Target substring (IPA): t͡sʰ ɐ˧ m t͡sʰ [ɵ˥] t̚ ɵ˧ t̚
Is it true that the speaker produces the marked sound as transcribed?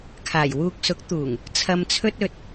yes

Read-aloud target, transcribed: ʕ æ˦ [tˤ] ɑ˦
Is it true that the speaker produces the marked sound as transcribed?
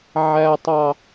yes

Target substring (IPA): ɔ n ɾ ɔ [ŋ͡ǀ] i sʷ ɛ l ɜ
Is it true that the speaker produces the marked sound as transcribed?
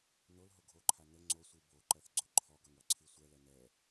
no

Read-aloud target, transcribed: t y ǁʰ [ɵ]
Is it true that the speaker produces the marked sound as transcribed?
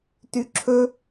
yes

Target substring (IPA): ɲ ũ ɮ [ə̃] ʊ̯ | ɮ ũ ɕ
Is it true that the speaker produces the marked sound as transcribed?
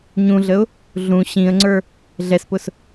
no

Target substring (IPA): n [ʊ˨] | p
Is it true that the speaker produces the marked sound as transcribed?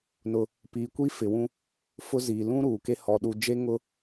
yes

